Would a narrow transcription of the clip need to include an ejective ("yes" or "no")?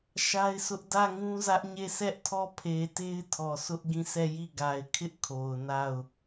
no